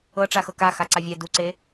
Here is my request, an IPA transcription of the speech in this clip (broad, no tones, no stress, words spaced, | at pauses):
ɤ ʈ͡ʂaxɤka xaǀavʲɛ duǀe